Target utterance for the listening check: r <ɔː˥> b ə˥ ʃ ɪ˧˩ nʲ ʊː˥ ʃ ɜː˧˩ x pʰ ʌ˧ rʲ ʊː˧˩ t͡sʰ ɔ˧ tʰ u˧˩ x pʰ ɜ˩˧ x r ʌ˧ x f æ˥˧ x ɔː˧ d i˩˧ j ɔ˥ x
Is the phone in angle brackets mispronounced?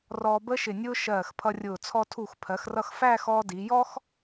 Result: yes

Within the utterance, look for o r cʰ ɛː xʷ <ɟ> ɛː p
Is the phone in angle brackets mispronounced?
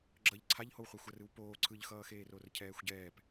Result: no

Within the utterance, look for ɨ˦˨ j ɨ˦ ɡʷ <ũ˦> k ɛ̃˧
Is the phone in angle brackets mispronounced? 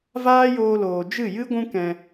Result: no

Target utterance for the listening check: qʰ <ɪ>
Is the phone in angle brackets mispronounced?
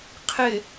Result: no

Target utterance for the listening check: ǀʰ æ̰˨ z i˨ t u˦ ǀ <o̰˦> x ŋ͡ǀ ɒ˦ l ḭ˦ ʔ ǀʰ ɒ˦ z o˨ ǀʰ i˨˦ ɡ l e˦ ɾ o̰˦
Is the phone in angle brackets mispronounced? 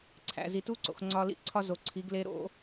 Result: yes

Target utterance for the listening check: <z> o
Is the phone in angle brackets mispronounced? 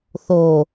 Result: yes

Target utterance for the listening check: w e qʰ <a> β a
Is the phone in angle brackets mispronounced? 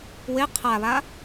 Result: no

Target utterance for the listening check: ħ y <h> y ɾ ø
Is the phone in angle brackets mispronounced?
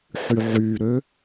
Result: yes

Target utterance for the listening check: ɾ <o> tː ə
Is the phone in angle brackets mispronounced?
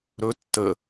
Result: yes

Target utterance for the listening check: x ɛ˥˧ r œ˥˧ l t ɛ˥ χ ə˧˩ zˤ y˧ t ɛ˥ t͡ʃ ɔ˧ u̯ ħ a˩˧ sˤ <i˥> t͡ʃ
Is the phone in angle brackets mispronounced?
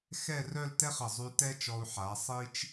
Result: no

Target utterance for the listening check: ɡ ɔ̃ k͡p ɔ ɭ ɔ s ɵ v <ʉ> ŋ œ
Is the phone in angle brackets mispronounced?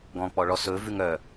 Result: no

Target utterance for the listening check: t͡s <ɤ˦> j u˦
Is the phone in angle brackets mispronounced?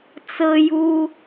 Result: no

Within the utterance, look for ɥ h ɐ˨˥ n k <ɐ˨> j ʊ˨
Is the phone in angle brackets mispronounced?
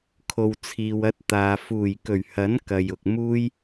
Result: no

